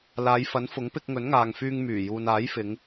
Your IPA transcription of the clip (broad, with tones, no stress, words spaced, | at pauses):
laː˨˧jfɐ˨˥nfʊ˨˥ŋ pɪ˧k̚ ŋɵ˨˥nŋaː˨ŋfyː˧ŋ myː˨˩juː˨naː˨˥jfɪ˨˧ŋ